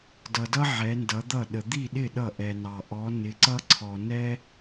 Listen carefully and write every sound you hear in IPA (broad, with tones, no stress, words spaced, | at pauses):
dʌ˨dʌ˥ ʕɛ˨˦ndʌ˨˦d̪ʌ˥˩ɗə˨ d̪i˥˩ɗɪ˥˩ ɗʌ˥˩ʔɛ˨nɑ˨ ʔɔ˨˦ nɪ˨˦ǀʌ˥ǀʰɔ˨ nɛ˥